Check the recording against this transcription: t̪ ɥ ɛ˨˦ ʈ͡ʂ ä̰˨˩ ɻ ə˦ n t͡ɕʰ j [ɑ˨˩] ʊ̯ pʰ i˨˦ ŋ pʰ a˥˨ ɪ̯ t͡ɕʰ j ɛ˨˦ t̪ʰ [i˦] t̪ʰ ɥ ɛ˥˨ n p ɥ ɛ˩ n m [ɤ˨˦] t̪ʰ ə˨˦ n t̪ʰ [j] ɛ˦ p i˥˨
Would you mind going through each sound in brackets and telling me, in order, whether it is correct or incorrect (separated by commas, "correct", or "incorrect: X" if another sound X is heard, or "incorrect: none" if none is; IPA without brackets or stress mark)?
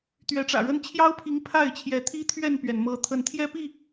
incorrect: ɑ˦, correct, correct, correct